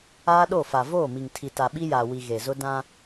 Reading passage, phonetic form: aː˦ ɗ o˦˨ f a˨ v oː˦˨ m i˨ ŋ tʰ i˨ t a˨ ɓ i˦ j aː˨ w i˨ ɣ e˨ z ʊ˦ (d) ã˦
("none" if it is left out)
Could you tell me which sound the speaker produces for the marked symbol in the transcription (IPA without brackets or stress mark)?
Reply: d